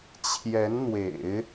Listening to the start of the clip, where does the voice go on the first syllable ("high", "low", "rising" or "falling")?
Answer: rising